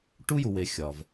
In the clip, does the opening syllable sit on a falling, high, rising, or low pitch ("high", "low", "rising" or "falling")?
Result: high